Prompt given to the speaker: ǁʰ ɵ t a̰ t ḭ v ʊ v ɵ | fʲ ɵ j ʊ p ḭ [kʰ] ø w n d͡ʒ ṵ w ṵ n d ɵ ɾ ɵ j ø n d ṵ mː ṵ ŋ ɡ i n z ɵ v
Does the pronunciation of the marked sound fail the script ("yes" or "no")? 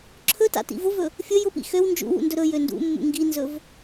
yes